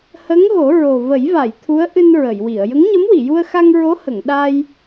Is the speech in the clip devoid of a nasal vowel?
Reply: yes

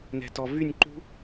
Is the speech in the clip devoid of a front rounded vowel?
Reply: no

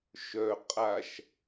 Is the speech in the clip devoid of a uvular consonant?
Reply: no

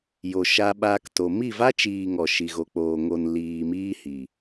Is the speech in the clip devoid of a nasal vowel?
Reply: yes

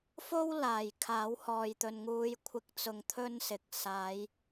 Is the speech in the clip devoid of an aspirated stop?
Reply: no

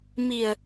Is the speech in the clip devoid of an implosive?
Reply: yes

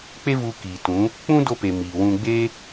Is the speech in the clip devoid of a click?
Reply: yes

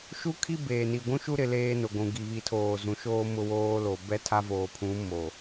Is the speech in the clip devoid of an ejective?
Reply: yes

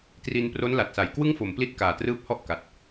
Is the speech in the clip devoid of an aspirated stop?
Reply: yes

